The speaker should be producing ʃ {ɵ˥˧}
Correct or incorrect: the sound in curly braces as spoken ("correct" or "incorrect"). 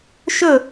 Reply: correct